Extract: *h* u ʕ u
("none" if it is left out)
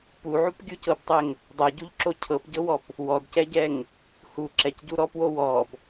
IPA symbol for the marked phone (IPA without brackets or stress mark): p